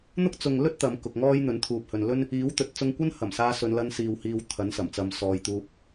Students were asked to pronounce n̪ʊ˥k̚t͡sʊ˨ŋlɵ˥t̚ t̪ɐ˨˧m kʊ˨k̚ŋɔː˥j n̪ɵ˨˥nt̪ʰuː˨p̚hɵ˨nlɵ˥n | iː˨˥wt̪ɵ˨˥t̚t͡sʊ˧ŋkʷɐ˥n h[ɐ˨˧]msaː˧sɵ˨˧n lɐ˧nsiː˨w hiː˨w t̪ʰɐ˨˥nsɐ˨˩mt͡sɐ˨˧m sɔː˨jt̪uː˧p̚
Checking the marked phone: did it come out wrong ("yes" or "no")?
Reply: yes